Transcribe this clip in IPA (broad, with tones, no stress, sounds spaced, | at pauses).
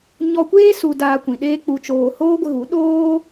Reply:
ɲ ɔ˧ kʷ eː˦ s u˧ d aː˧ kʷ ĩ˨ ɗ eː˦ k͡p u˧ t͡ʃ oː˧ h oː˦ ɡʷ ə˧ ɣ u˨˦ ɗ oː˦